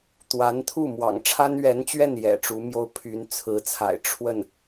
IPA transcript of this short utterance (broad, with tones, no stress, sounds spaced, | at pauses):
t̪ w a˧˥ n t̪ʰ u˥˩ m w ɑ̰˨˩ ŋ ʈ͡ʂʰ a˥ n ɥ ɛ˧˥ n t͡ɕ ɥ ɛ˥˩ n j ɛ̰˨˩ ʈ͡ʂ u˧˥ m j o˥ ʊ̯ pʰ y˧˥ n t͡sʰ ɹ̩˧˥ t͡sʰ a̰˨˩ ɪ̯ ʈ͡ʂʰ w ə˥˩ n